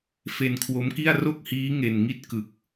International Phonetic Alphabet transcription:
f e˧ n kʰ w o˦˥ m k i˥˩ a̯ r o˥˩ k̚ h iː˦˥ ŋ e˧ n ŋ i˥˩ t̚ k ɯ˨˩ k̚

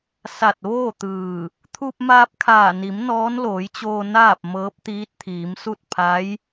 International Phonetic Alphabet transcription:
s a˧˩ t̚ ʋ oː˥˨ t̪ ɯː˧˩ | t̪ʰ u˧ p̚ m aː˧ p̚ kʰ aː˧˩ n i˩˧ m n ɔː˧˥ n l oː˩˧ j t͡ɕ oː˧ n aː˥˨ p̚ m ɤː˧˥ p̚ t̪ iː˧˥ t̚ t̪ʰ iː˩˧ m s u˥˨ t̚ pʰ a˧˥ j

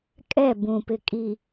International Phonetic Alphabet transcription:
kʼ ɛ˦˨ b ũ˨ p ɪ˨ kʼ i˨

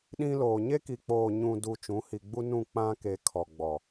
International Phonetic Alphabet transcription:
ɗ ĩ˦ l oː˨ ɲ e˦ k i˨ k͡p oː˨ ɲ ũ˨ d u˨ t͡ʃ ũ˨˦ h i˨ ɡ͡b u˦ n ũ˦˨ k͡p ã˦ k e˨ kʰ ɔ˨ ɡ͡b ɔ˨

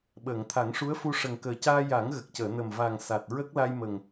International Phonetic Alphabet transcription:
ɓ əː˨˩˨ ŋ t̪ʰ a˨˩˦ ŋ ʂ u˧˥ ə̯ f u˧ ʂ ə˨˩ ŋ k əː˨˩ c aː˧ j a˨˩˦ ŋ ɣ ə˨˩ k̚ c əː˨˩˨ n ə˨˩ m v a˨˩ ŋ s a˨˩ t̚ ɹ ə˦˥ k̚ l a˧ j m ə˨˩ ŋ

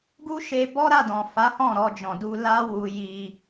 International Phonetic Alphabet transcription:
ɡ u˦ ʃ e˧ b ɔ˦ ɾ a˦˨ d ɔ̃˨ f a˨˦ h ɔ̃˦˨ ɾ ɔ˧ d͡ʒ ɔ̃˨ d u˧ l a˦ w u˧ j i˧

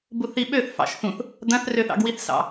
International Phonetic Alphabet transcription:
b u θ i ɓ ø θ f ɑ̰ ʃ θ ũ θ | d̪ ɐ̃ θ r ø θ ɑ̰ ɡ w i θ s ɑ̰

